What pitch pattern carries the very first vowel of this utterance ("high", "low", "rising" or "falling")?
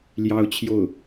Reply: high